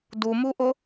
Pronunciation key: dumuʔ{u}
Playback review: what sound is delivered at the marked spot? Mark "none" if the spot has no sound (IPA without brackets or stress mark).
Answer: ʊ